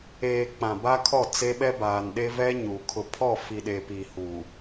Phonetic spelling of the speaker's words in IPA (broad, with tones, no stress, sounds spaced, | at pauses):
eː˨ k͡p ã˨ b a˦ kʰ ɔ˦˨ t͡s e˦ ɓ ɛ˦ b aː˨ n ɗ e˦ v ɛ˦ ɲ uː˨ kʰ ʊ˨ pʰ ɔ˦˨ f i˨ ɗ eː˨ p iː˨ h u˨